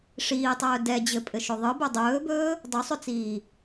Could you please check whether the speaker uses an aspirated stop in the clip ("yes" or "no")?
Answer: no